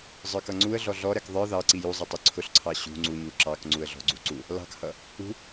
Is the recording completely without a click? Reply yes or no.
no